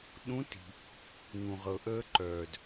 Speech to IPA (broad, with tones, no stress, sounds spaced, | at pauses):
ɗ ũ˧˥ t i̤˩ | ŋ ũ˩ ʁ ɤ˩ ʔ əː˧ ǃ œː˩ d